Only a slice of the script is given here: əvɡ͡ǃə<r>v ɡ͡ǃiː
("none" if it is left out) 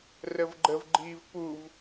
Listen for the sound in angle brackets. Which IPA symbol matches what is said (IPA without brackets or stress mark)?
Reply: none